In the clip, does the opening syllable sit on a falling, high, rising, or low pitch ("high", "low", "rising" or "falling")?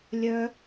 high